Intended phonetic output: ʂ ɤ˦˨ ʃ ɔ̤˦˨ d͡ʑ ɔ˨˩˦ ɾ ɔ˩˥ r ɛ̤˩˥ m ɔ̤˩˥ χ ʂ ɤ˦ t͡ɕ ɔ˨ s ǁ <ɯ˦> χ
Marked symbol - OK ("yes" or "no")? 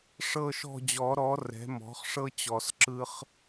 yes